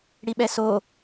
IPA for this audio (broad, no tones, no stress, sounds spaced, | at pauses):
ɽ i ɓ ɛ s o